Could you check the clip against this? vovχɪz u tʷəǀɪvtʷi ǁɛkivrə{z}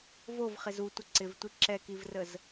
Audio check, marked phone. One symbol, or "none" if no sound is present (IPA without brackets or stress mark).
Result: z